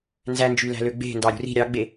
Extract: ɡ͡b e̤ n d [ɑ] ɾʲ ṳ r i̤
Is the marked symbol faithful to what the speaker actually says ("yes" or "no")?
yes